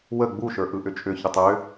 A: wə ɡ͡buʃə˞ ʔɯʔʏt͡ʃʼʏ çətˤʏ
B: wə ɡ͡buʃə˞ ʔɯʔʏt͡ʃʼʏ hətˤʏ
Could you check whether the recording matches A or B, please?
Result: A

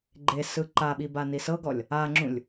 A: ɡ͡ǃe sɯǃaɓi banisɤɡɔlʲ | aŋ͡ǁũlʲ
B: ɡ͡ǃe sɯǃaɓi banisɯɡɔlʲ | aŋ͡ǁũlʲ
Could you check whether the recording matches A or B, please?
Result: A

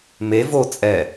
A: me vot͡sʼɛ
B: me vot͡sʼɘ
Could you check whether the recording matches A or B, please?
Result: A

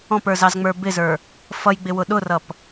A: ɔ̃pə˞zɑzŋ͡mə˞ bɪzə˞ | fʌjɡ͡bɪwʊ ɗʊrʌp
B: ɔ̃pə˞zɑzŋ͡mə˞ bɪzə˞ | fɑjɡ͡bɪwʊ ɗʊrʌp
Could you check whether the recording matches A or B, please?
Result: A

